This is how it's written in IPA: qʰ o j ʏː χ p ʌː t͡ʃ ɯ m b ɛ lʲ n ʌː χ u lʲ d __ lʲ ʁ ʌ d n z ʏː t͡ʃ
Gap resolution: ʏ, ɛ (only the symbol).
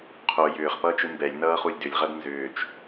ʏ